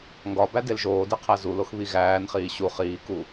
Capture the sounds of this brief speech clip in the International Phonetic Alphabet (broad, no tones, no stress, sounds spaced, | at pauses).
ŋ ɡ ɒ b æ d e l ʒ oː d e qʰ æ z u l o x β i ɣ æː n χ iː ɕ u χ iː k u